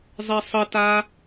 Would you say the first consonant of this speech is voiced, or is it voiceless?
voiced